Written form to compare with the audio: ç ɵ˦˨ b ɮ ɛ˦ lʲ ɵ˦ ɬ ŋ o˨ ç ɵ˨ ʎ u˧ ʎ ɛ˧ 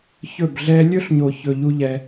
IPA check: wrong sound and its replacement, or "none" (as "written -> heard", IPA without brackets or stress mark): ŋ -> ɲ